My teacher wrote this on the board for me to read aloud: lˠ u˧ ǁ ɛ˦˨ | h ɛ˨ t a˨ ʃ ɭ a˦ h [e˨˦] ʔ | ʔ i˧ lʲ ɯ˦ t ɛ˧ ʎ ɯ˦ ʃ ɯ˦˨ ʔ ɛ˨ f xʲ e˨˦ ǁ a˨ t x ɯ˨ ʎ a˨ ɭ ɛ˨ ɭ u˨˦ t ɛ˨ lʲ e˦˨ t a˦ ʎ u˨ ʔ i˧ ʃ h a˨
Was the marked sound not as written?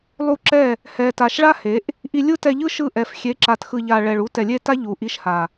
no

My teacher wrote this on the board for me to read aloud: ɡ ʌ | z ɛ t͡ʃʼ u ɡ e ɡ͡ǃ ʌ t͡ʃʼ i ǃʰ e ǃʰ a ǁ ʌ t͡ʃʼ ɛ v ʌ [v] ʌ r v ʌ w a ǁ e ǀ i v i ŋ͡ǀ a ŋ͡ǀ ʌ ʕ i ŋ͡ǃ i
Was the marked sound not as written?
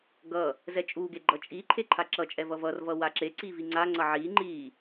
no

